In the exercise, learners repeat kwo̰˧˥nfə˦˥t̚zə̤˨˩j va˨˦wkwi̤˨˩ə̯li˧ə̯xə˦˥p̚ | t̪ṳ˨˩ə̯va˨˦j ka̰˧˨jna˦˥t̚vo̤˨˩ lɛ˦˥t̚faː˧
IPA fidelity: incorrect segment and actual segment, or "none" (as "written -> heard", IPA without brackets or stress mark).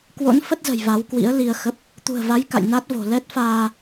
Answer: i̤˨˩ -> ḭ˧˥